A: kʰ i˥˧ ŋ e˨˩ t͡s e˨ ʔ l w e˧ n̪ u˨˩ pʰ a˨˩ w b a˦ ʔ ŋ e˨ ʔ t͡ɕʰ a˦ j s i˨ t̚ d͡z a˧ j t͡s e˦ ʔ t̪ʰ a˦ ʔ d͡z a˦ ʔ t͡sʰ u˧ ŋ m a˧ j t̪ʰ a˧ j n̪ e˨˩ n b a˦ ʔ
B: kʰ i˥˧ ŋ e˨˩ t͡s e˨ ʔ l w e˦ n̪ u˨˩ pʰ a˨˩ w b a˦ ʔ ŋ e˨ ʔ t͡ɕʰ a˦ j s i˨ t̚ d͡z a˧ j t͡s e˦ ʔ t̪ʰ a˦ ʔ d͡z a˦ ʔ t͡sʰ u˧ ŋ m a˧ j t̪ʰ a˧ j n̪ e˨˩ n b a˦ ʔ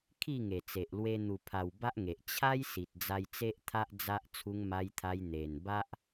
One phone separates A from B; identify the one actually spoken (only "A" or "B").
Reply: A